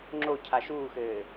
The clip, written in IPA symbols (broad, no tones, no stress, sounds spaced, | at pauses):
ŋ͡ǁ o cʰ a ʃ uː x ɘː